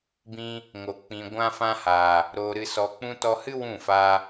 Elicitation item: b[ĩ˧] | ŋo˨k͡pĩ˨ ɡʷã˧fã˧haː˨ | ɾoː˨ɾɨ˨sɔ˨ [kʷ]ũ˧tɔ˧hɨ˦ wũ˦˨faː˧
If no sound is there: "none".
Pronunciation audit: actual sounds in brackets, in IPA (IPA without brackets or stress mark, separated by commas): ĩ˧, k͡p